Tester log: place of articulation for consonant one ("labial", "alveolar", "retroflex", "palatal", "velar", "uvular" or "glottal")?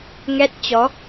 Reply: velar